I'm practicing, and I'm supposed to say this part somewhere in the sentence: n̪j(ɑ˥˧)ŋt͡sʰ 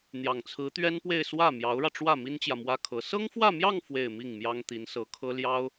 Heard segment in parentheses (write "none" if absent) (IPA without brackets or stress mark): ɑ˨˩